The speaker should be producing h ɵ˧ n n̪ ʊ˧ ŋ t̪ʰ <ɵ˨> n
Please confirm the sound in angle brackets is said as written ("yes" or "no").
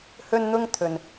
yes